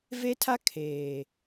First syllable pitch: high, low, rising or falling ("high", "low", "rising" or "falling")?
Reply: high